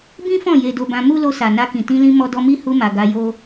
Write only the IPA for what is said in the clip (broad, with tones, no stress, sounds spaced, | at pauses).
b ĩ˦ f ɔ̃˦˨ j e˧ d o˧ b ã˧ m u˦ l o˧ s a˨ n a˧ k ĩ˨ t ĩ˧ l ĩ˧ m ɔ˧ d ɔ˧ m i˦ h u˧ m a˨ ɡ a˧ j o˦